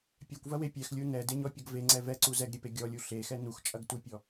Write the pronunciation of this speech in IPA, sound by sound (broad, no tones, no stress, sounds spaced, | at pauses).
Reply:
pʲ ɛ kʷ v ɐ w e pʲ ɛ x lʲ u n ɛ d e ɲ ɔ pʲ ɐ ɡ v e ŋ͡ǀ ɛ v ɛ ǀ u z ɛ ɡ ɾʲ e p e ɡʲ ɔ lʲ u ɬ e x ɛ n u x t͡ʃʼ ɐ ɡ t u pʲ ɔ